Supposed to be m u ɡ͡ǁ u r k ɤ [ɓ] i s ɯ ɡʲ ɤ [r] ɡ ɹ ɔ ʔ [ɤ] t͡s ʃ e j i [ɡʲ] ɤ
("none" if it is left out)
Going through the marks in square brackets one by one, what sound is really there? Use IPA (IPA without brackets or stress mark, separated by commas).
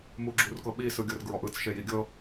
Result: ɓ, r, ɯ, ɡʲ